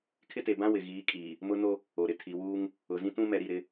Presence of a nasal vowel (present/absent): present